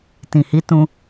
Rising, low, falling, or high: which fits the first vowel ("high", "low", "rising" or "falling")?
low